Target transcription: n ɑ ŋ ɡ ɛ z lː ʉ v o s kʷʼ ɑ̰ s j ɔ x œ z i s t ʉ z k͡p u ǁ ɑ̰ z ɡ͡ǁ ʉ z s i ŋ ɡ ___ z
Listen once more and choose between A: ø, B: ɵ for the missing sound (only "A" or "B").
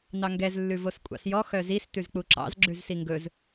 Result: B